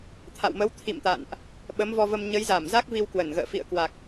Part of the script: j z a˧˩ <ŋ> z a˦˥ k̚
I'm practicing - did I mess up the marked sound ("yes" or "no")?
yes